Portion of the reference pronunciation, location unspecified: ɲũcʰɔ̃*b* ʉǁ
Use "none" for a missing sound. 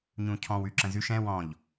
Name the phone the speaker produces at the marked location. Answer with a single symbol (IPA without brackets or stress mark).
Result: w